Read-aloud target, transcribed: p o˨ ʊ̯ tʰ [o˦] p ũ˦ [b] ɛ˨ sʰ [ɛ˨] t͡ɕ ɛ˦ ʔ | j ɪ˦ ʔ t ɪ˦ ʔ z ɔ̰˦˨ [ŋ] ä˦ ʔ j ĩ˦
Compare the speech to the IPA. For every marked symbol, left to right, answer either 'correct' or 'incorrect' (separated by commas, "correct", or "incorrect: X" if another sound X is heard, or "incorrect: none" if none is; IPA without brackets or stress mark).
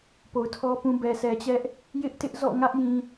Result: incorrect: ɔ˦, correct, correct, correct